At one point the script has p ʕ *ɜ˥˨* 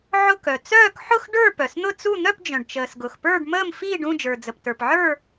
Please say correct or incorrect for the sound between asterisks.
incorrect